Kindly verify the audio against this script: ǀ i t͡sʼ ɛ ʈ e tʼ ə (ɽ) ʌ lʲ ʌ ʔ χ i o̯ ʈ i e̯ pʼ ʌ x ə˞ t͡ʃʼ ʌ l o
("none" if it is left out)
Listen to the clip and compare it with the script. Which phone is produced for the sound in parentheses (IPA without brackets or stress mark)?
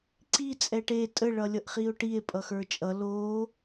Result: ɭ